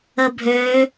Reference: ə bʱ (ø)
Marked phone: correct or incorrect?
correct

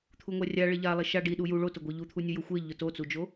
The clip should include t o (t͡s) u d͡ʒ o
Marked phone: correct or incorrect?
correct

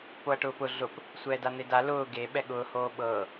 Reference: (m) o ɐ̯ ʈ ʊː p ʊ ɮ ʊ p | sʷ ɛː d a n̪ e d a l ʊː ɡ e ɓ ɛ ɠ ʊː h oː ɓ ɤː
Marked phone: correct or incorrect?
incorrect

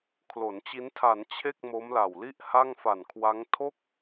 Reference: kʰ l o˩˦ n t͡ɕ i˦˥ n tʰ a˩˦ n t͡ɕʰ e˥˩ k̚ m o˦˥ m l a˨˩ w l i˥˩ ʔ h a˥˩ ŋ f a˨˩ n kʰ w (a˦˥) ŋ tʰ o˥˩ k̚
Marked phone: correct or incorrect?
correct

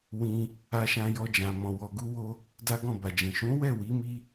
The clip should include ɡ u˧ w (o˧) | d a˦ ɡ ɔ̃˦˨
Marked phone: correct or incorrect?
correct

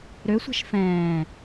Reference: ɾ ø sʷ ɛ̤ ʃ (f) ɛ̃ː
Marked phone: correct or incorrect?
correct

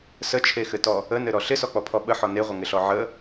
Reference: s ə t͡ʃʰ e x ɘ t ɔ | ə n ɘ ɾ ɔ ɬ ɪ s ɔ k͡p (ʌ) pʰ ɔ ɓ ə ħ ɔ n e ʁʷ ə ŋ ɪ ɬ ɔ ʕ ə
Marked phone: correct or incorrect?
incorrect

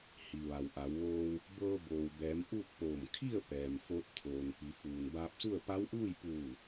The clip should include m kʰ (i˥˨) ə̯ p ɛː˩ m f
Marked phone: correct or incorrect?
correct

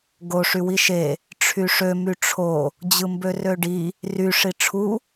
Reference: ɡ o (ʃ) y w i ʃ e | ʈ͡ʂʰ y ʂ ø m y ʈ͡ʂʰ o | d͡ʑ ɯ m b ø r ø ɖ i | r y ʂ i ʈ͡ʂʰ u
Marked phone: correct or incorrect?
incorrect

